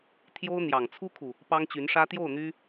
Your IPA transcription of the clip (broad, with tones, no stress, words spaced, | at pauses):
t̪ʰjo˥ʊ̯n̪jɑ˨˩ŋ t͡sʰu˥kʰu˨ | pɑ˥ŋt͡ɕy˧˥nʂä˥ t̪jo˥˩ʊ̯n̪y˥